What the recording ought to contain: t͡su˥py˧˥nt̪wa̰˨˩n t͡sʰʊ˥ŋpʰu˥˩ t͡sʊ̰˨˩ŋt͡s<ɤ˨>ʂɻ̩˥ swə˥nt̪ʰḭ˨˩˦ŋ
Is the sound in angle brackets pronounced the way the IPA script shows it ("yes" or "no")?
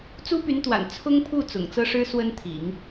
no